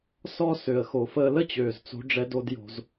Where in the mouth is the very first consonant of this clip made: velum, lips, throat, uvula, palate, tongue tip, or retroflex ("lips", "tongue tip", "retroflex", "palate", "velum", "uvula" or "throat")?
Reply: tongue tip